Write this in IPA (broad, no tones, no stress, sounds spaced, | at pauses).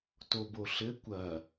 t o b o ɬ ɘ kʷ ɐ